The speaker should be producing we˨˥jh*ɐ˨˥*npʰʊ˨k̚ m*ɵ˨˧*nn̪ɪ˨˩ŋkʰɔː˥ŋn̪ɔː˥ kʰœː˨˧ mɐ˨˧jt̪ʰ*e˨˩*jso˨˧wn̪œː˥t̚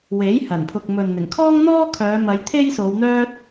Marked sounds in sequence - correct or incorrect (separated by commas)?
incorrect, incorrect, incorrect